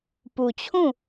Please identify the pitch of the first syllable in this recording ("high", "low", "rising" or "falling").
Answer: low